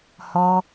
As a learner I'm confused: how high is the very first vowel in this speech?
mid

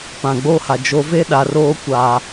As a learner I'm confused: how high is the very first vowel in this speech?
low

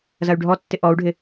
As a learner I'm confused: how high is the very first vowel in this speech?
low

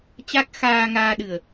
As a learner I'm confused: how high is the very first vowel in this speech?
low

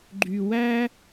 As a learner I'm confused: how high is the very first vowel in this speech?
high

